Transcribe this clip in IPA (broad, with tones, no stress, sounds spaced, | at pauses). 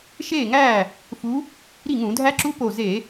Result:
ʃ eː˥˩ ŋ æː˥˩ | f u˨˦ | ɾ i˥˩ ŋ ũ˧˩˧ dʱ æ˦˥ ǁ u˦˥ p o˧˩ z e˧˩˧